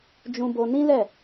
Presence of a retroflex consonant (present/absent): absent